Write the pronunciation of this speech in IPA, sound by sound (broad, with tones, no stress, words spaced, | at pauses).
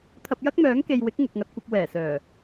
t̪ʰɐ˧p̚jɐ˥k̚mœː˨˥ŋke˨j wɪ˨˥k̚ŋʊ˨k̚ŋɐ˧t̚kʷɐ˧p̚ wɛː˨˩ sœː˨˩